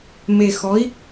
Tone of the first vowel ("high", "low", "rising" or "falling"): low